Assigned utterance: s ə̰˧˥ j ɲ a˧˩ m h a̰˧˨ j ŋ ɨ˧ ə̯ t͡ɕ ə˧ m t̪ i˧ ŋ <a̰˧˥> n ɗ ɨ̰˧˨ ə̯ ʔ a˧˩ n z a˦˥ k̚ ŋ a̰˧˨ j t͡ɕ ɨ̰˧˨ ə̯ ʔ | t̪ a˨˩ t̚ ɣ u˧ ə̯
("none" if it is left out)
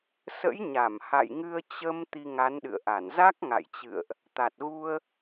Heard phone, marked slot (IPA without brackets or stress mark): a˨˦